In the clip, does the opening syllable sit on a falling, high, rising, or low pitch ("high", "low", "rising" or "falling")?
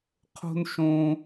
high